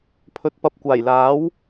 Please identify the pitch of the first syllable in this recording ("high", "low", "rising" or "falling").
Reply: low